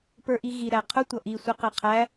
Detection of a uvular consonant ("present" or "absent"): present